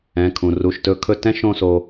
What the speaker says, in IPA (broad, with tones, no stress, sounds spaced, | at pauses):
ɛ̃˩˧˩ kʰ ũ˩ r u˩˧˩ ʃ t ɵ˧ kʰ ɵ˥˧ t ɛ̃˥ ʃ õ˥˧ s o˧